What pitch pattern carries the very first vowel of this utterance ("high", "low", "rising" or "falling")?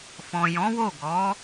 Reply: low